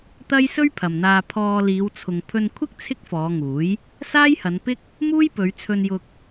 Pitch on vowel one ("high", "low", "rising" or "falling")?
high